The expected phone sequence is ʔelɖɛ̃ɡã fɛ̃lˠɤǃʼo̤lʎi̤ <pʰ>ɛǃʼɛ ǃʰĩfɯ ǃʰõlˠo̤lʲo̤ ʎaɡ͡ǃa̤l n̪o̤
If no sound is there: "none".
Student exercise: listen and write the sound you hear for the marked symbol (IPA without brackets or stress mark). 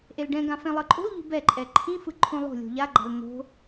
b